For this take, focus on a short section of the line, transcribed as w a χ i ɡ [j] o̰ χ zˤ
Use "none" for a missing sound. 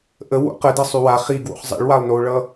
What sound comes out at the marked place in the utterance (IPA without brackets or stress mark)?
w